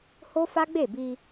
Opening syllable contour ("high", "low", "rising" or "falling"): high